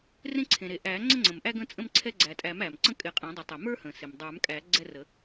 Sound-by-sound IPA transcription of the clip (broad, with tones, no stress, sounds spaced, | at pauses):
r ẽ˦ ǀʰ ẽ˩ ɾ e˩ ʔ æ˨˩˦ ŋ͡ǀ ə˦ ŋ͡ǀ ə̃˩ m ʔ æ˦ ɡ ə̃˦ t͡sʼ ə̃˦ m ǀʰ ɛ˦ ɡ͡ǀ æ˩ tʼ æ˨˩˦ m æ˩ m ǀ ə̃˦ kʼ ɪ˨˩˦ qʼ ẽ˨˩˦ dˤ ə˨˩˦ tˤ ɛ˩ m ə˞˦ h ə̃˩ s e˩ m dˤ ə˞˨˩˦ m kʼ æ˨˩˦ ɡ͡ǀ ɛ˦ r ə˨˩˦